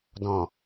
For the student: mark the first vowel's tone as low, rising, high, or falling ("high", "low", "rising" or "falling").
low